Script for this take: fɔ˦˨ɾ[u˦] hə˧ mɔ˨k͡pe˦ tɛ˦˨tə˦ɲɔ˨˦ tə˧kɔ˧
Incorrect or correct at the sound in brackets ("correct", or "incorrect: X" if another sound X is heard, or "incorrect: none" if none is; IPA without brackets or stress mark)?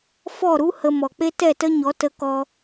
correct